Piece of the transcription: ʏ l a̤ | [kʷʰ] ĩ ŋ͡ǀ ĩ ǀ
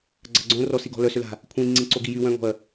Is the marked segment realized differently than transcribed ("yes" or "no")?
no